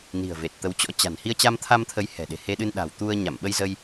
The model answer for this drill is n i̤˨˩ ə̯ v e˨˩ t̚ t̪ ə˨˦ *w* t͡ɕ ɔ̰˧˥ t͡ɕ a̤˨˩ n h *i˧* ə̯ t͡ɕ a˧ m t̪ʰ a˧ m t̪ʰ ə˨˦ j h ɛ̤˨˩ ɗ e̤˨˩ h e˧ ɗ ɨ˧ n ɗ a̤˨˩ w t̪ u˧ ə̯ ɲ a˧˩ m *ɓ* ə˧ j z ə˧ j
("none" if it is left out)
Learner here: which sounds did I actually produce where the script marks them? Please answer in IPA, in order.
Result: w, i˧, ɓ

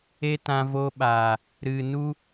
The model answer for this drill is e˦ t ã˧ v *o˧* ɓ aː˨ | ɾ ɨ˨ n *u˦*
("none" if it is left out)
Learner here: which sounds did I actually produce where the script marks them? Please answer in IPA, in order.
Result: o˧, u˦

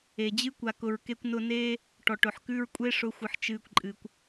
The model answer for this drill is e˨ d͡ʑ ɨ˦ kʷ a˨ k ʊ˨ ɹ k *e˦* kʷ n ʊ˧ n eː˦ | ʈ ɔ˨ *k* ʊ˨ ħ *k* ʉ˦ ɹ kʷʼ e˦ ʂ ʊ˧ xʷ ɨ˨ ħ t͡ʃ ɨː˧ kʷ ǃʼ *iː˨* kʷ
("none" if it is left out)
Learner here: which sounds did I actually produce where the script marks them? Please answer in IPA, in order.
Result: e˧, ʈ, k, ɨː˨

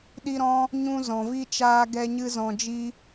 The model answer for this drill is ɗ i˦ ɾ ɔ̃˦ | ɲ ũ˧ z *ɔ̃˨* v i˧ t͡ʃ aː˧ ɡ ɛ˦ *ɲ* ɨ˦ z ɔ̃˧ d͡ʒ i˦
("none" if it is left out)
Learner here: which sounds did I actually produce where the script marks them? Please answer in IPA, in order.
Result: ɔ̃˨, ɲ

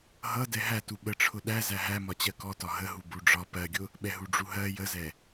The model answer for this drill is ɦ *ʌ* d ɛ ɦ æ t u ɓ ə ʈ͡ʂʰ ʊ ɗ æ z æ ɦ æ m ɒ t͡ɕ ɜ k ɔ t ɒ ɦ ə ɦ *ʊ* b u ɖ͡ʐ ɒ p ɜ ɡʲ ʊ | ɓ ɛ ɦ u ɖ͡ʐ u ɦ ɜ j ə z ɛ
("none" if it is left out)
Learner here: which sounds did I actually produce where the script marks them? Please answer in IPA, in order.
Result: ʌ, u

